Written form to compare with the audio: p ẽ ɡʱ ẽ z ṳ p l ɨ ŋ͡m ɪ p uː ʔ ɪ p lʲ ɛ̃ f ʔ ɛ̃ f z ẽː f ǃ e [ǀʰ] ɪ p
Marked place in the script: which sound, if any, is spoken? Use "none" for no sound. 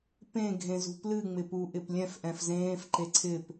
ǀʰ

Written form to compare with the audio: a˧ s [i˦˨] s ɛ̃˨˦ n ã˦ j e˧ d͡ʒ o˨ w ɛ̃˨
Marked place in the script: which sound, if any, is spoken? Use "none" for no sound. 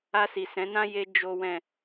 i˨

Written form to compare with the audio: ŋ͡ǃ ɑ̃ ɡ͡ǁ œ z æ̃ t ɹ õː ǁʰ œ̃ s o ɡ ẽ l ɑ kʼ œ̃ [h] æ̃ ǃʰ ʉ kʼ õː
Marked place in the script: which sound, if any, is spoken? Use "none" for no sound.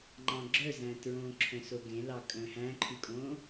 h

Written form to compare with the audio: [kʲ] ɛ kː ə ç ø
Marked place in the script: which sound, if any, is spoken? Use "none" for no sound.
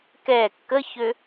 k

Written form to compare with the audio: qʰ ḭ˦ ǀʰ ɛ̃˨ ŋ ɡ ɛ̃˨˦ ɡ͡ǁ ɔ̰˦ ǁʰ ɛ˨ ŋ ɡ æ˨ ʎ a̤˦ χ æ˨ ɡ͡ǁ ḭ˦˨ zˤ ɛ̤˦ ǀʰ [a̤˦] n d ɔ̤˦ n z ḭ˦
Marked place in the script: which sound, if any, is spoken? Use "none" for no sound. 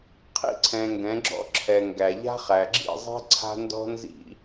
a̤˦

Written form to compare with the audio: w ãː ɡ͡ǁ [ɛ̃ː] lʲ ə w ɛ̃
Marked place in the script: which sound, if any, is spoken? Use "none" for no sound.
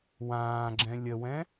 ɛ̃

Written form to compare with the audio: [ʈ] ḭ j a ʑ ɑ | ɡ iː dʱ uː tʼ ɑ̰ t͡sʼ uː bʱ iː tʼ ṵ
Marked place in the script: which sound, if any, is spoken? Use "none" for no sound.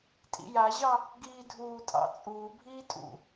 tʼ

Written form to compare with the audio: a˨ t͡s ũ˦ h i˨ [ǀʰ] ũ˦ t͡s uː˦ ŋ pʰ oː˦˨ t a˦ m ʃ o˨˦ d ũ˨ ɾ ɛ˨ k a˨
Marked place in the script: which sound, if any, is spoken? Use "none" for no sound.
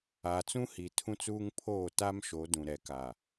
tʰ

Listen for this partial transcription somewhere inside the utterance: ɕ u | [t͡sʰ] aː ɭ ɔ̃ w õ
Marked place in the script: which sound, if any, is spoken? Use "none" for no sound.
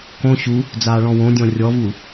d͡z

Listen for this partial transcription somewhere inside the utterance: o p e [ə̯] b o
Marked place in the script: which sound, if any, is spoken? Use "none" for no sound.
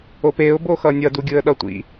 ʊ̯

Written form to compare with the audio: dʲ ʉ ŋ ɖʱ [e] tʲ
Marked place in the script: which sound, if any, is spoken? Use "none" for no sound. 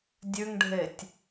e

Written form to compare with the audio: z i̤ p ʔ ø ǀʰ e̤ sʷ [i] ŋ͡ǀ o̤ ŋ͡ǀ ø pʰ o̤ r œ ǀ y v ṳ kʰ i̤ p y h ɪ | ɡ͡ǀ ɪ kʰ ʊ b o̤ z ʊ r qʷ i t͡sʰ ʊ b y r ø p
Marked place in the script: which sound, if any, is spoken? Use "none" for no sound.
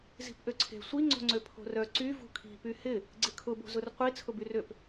i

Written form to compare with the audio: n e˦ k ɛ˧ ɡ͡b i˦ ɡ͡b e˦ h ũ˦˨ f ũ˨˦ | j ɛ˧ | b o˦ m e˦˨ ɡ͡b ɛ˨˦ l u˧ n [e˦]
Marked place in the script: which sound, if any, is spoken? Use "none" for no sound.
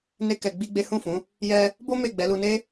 e˦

